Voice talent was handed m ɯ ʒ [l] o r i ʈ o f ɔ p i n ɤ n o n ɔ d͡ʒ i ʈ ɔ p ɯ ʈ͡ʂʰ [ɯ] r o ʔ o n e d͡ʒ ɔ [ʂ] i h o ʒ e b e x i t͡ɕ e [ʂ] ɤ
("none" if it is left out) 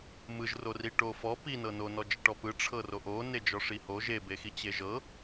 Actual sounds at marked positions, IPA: r, ɤ, ʂ, ʒ

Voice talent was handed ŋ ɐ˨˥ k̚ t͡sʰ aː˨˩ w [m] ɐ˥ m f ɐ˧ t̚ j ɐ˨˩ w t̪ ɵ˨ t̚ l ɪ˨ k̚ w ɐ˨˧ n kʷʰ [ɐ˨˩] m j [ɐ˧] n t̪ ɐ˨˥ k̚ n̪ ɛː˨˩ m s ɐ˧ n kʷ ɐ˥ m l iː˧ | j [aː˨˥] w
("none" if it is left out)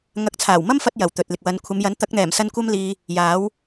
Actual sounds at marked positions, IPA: m, ɐ˨˧, ɐ˨˥, aː˨˥

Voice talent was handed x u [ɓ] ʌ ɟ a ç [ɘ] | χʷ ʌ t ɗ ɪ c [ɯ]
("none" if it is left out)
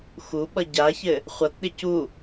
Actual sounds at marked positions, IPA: ɓ, ɘ, u

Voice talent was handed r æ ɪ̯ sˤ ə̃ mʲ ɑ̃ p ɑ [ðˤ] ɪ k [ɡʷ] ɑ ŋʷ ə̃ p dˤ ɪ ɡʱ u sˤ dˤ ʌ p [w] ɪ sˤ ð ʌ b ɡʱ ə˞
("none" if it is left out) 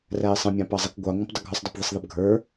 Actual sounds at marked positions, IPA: zˤ, ɡʷ, ð

